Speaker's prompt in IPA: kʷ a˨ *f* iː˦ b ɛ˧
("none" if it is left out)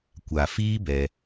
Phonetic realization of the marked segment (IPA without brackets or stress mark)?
f